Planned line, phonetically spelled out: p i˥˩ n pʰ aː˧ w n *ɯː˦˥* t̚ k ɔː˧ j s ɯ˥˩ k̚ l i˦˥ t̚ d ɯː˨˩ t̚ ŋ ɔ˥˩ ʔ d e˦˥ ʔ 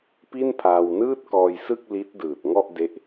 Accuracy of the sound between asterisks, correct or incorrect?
incorrect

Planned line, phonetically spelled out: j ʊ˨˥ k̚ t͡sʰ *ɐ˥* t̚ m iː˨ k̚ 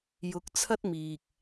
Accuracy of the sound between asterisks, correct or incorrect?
correct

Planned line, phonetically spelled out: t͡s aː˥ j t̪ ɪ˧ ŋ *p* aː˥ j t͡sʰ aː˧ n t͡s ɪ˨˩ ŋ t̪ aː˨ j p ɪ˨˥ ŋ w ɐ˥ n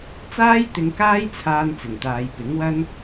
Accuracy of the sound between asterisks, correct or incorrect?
incorrect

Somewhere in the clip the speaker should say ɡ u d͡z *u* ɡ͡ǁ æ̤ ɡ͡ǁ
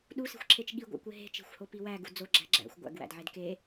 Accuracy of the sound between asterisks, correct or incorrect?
incorrect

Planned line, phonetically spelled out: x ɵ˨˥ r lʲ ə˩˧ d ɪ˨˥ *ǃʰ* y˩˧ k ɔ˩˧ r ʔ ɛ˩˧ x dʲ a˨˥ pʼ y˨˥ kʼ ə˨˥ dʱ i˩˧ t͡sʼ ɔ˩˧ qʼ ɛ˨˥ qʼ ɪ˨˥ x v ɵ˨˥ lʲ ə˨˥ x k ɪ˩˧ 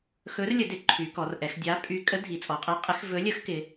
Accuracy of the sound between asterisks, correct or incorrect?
correct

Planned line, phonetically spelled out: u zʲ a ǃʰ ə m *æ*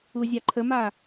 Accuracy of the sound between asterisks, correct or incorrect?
incorrect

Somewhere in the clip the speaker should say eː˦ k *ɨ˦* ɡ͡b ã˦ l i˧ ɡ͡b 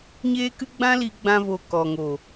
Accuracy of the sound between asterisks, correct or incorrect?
correct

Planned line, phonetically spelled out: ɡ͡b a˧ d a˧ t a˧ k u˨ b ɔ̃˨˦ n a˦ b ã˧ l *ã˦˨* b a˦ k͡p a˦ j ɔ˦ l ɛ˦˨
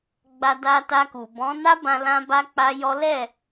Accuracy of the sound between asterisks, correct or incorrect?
incorrect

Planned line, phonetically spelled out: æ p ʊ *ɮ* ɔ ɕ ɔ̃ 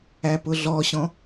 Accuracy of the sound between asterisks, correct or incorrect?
correct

